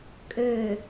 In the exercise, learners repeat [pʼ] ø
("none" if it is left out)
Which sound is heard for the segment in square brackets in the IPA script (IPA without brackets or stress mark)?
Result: kʼ